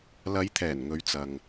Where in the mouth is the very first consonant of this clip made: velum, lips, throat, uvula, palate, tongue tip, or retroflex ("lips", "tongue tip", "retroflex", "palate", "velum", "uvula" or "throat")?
tongue tip